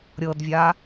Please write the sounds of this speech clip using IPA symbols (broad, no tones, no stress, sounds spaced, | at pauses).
ɾʲ ɤ d vʲ a